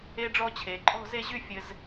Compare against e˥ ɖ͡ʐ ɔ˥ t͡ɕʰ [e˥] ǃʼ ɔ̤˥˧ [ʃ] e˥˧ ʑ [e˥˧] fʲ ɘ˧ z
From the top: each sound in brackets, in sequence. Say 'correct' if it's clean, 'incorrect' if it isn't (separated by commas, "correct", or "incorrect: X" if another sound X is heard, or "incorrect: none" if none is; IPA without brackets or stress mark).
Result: incorrect: e˩˧, incorrect: z, incorrect: y˥˧